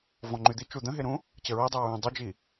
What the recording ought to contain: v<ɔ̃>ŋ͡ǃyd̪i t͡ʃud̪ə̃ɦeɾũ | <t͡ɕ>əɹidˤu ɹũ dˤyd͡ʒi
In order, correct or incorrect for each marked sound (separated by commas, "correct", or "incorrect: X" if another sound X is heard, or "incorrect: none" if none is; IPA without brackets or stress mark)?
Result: correct, correct